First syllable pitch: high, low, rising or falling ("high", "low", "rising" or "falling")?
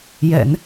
low